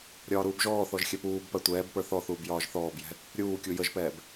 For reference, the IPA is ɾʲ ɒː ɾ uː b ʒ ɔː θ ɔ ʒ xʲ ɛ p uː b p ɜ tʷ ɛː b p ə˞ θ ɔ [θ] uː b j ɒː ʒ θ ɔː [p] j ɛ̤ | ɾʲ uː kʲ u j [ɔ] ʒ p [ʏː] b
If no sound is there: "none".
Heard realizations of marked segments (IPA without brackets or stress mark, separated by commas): θ, b, ə, ɛː